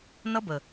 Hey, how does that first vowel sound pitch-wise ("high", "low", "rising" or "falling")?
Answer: high